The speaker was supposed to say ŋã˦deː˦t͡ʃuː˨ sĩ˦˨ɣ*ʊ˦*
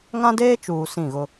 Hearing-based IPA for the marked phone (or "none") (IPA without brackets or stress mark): ʊ˦